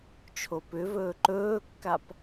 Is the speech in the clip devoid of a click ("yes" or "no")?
no